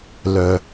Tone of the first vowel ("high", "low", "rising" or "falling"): low